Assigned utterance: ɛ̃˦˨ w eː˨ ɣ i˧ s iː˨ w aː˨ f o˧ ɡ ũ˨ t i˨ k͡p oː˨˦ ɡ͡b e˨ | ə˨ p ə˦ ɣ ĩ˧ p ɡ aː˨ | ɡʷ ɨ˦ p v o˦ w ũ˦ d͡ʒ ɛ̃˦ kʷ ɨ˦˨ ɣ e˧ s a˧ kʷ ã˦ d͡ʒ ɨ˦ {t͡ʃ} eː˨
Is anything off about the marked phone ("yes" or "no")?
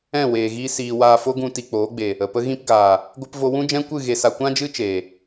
no